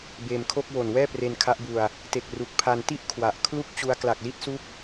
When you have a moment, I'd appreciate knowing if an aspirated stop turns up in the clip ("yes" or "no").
yes